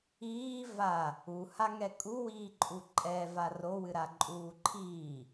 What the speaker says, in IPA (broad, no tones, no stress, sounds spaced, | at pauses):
iː v a | u h a ŋ ɛ kʼ u w iː ǃʼ u ǃʼ ɛ v a r o w ɨ ɾ a ǃʼ uː ǃʰ iː